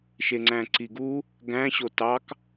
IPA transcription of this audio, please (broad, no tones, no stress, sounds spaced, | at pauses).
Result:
ʃ e ŋ͡ǀ æ̃ ǀ i ɡ u | ɡ æ̃ ɕ o t ɑ k